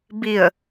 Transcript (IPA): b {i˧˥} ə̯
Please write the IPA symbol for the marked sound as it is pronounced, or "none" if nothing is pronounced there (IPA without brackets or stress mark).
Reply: i˧˩